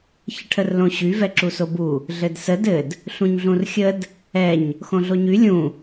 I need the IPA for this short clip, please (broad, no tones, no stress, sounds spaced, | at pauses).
ç ə ʈʰ ə r l õ ɕ y v ɛ ǁ u s o b u | ɮ ɘ d s ə d ɘ d | ɬ ũ ɲ ɮ ũ r xʲ ə d | ɛ ɲ | x õ ɮ o ɲ y lʲ ũ